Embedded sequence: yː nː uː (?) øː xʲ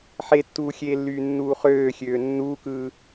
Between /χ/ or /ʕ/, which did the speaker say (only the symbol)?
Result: χ